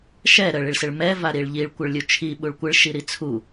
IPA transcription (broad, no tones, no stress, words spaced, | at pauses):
ʃɛ ɾəɭ iɭsɪɭmɛ vaɾiɭʎiɭ kʷɪɭlʲut͡ʃʰi ɓuɭkʷɪɭ ʃiɾit͡sʰu